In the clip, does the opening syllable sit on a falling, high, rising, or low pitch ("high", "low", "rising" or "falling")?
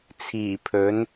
low